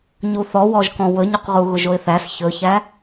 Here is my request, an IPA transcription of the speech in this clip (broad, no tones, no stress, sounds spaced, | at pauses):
ɲ u θ ɔ w ɔ ʒ k ɔ̃ w ɵ ɲ u q ʁ u ɣ ʊ ʒ o ɪ̯ θ æ s ç ɵ ç æ